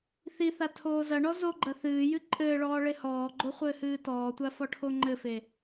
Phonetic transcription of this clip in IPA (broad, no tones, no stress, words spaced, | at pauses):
θiθa tʰoːzɐɳɔ zoɡ͡ǃɐ θɨːjɨ ǃʼɘːɭɔː ɭehɔːɡ͡ǃo χʷɘːhɨːtɔːtʷa fɔʈʰoŋ͡ǃɘfe